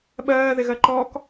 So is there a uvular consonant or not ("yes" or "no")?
no